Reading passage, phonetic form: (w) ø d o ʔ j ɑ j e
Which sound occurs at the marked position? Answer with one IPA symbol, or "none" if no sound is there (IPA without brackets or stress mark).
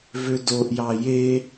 v